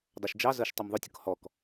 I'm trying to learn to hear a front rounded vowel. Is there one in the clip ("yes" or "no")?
no